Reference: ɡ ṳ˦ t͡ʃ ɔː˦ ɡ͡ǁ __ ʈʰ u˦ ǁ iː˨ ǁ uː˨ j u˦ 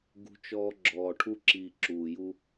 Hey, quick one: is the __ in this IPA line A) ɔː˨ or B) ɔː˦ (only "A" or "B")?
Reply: A